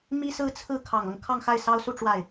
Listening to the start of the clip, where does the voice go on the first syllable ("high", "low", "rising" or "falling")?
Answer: high